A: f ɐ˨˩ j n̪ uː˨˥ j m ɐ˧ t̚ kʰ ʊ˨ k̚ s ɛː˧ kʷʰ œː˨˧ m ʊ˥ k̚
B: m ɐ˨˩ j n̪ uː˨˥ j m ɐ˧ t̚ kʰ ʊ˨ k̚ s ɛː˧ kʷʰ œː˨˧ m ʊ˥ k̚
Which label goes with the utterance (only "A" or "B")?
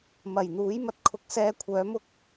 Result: B